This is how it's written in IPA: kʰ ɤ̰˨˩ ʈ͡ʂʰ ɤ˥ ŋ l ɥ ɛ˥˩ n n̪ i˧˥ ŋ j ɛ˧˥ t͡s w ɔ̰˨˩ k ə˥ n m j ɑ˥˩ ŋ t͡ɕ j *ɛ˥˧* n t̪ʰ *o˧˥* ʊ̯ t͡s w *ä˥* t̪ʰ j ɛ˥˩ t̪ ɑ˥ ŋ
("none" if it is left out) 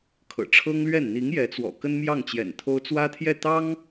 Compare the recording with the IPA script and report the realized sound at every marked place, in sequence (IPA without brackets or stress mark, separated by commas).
ɛ̰˨˩, o˥, ä˥